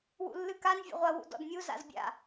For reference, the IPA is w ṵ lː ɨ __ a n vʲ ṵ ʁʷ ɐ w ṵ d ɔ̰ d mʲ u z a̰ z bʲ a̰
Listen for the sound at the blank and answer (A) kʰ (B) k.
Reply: B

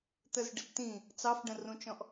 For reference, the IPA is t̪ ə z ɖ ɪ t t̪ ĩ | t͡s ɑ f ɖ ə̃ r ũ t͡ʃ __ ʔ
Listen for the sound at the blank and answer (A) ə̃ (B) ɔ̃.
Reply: B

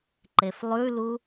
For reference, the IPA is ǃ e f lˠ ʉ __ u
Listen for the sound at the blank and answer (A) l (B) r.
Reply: A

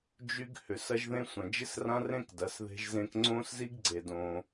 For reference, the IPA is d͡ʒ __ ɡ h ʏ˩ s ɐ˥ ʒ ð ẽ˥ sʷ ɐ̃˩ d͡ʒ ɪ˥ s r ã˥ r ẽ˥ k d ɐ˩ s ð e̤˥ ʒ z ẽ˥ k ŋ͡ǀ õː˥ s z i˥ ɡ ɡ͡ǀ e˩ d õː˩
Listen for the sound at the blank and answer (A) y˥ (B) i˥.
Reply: A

